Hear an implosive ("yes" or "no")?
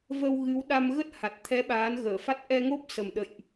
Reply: yes